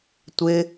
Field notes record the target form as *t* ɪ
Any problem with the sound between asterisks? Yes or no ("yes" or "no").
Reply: yes